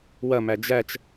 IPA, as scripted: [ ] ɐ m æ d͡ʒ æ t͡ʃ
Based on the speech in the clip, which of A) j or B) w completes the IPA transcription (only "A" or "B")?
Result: B